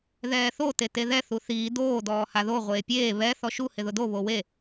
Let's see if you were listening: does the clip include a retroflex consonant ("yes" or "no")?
no